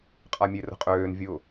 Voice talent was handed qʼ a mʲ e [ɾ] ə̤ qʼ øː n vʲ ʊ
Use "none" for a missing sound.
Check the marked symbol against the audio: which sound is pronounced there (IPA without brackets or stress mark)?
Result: r